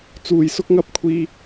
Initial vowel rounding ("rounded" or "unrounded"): rounded